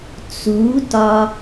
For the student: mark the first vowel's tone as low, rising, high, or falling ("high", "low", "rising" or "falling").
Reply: rising